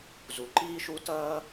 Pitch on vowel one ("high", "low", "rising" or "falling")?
low